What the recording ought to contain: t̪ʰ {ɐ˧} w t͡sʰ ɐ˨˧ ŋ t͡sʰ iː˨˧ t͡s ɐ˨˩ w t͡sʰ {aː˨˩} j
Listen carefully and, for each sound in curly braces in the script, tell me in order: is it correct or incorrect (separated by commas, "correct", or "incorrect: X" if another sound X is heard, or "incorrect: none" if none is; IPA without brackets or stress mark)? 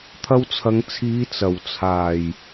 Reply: correct, correct